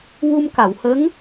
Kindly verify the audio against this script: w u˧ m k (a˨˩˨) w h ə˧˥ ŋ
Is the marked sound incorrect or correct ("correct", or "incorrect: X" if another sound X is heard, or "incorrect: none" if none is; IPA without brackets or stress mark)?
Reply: correct